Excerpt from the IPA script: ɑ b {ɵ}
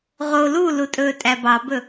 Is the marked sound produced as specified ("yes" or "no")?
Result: yes